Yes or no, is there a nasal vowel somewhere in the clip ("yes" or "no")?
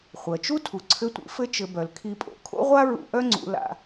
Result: no